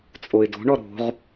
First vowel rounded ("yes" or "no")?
yes